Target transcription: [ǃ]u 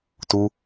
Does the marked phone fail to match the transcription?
yes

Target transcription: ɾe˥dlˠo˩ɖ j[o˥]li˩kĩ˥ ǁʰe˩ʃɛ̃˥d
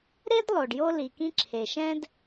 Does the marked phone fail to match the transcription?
no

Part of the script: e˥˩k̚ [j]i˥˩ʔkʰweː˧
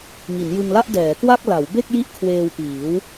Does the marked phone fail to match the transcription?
no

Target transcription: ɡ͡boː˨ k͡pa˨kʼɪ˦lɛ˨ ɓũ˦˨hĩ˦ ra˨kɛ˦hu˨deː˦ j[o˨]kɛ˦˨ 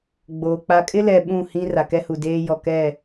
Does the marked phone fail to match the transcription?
yes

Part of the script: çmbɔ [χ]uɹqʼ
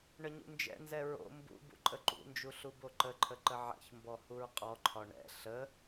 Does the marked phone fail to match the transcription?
yes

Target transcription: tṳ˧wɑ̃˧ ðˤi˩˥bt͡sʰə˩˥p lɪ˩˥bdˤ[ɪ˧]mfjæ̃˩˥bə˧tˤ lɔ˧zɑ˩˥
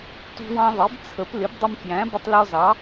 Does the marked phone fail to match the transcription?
no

